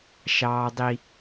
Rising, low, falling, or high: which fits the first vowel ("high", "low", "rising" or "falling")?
high